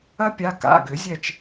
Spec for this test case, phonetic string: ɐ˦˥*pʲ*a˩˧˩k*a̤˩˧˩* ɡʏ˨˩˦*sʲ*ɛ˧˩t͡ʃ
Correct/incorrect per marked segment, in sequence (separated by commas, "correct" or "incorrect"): correct, incorrect, incorrect